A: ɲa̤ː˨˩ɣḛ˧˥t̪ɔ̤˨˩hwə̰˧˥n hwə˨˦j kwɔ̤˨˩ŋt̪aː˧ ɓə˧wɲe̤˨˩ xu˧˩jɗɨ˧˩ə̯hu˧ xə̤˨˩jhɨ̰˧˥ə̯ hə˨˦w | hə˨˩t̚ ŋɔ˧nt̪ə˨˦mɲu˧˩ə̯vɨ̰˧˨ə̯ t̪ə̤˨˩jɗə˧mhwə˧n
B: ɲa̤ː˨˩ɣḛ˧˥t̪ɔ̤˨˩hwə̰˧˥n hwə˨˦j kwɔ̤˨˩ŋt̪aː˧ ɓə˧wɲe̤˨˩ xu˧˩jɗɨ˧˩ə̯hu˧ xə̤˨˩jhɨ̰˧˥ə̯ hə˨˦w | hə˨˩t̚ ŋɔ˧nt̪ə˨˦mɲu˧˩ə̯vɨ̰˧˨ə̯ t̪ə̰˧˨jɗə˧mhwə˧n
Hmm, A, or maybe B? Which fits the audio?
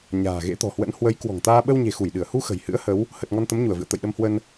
B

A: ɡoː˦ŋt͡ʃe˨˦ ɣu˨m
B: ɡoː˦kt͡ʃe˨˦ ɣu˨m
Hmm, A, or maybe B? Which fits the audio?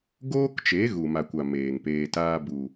B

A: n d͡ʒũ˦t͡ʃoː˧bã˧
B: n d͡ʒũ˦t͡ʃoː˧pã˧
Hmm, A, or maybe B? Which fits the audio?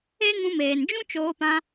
B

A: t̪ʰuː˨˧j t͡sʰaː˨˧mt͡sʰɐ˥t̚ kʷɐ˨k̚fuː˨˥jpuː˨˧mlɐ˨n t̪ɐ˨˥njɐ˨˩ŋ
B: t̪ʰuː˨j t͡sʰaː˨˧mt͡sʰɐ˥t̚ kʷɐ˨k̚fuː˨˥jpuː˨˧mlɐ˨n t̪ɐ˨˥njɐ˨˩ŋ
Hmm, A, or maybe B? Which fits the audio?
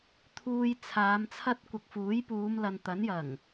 B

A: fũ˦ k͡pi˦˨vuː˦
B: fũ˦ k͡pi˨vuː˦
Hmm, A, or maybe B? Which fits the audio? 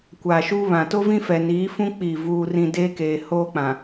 A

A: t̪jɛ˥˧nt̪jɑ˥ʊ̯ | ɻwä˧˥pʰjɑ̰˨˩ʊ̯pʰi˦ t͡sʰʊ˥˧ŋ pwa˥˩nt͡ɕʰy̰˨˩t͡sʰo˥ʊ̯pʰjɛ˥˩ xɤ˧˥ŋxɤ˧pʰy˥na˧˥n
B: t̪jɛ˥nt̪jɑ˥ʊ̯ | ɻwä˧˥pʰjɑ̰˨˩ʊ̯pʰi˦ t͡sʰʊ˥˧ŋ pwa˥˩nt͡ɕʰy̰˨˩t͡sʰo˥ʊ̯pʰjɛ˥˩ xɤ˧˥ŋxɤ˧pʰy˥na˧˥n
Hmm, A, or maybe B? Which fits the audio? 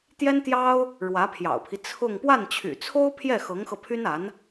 B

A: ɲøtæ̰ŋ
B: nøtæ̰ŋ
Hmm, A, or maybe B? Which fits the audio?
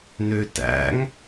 B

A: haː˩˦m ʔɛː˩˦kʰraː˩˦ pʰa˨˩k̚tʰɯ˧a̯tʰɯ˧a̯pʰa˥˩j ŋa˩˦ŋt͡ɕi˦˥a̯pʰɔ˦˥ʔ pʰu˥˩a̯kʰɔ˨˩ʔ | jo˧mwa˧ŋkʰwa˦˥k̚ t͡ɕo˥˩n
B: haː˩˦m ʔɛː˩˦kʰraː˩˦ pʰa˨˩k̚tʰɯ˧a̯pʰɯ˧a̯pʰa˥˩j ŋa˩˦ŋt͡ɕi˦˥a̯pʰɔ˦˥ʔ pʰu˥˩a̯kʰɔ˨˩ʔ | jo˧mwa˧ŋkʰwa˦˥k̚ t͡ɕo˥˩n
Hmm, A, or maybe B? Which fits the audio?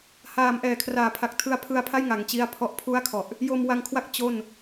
B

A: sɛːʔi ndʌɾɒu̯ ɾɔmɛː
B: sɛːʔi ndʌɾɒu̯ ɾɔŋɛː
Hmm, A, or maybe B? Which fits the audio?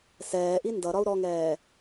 B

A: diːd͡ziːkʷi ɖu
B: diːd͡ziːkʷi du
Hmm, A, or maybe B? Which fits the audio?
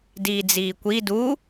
B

